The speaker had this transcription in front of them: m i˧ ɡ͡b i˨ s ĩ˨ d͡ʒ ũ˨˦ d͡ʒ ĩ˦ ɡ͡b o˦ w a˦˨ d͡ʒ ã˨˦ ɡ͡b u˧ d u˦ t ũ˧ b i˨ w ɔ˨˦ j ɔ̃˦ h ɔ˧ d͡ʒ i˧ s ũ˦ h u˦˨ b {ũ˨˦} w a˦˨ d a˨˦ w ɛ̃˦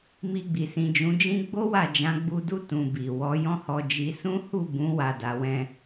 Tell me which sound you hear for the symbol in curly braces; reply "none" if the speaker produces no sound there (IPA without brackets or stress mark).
ũ˨˦